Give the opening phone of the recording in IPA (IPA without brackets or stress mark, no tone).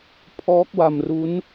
pʰ